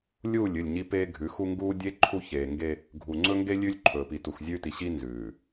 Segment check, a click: present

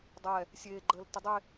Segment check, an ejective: absent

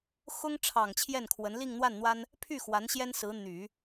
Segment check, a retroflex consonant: present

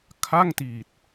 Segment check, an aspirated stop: present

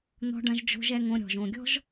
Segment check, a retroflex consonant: present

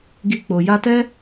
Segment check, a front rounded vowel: absent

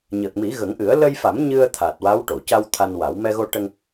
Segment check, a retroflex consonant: present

